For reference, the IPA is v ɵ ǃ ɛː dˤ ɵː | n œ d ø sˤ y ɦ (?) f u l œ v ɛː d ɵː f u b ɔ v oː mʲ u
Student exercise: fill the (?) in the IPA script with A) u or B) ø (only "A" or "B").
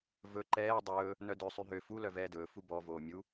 B